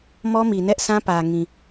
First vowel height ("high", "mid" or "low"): mid